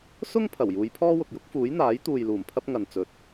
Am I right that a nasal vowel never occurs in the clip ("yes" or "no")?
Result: yes